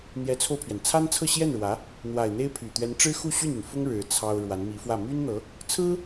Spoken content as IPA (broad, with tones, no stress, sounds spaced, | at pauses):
n̪ j ɛ˧˥ t͡sʰ o˧ ʊ̯ pʰ ɥ ɛ˩ n t͡sʰ a˥ n t͡sʰ ɤ˥˧ ɕ j ɛ˥˩ n ɻ w ä˧˥ | n̪ w a˨˩ ɪ̯ n̪ e˥ ɪ̯ pʰ y˨˩ t̪ ɥ ɛ˧˥ n ʈ͡ʂ ɻ̩˥ x u˥˧ ɕ y˥˩ n y˩ n f ʊ˥ ŋ ɻ ɻ̩˧˥ t͡sʰ ɑ˥ ʊ̯ ɻ w a˧˥ n m i˧˥ f w ä˥˩ m y˥ n n̪ ɤ˧˥ | t͡sʰ ɹ̩˥